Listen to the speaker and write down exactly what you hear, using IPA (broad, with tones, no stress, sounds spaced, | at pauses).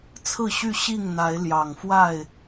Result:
t͡sʰ ɹ̩˥˨ ɕ y˥˨ ɕ i˥˨ ŋ n̪ a˨˦ ɪ̯ l j ɑ˨˩ ŋ f w a˥˨ ɪ̯